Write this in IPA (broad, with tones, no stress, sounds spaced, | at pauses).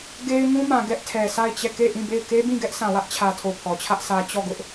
ɡ e˦ ɪ̯ ŋ ũ˦ m ã˨ ɡ ɛ˦ ʔ tʰ ɛ˨ sʰ a˦˨ ɪ̯ t͡ɕ ɛ˦˨ k e˦˨ ʔ ĩ˦˨ b e˦˨ ɪ̯ k e˦ b ĩ˦˨ ɡ ɛ˦ ʔ sʰ ã˨ w ä˦ ʔ t͡ɕʰ ä˨ tʰ o˨ pʰ ɔ˨ t͡ɕʰ ä˦ ʔ sʰ ä˦ t͡ɕ ɔ˦˨ ɡ ʊ˦ ʔ